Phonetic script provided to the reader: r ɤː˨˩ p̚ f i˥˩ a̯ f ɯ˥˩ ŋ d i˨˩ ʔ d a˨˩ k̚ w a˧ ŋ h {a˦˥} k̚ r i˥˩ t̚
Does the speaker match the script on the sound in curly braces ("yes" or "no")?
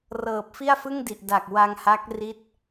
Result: yes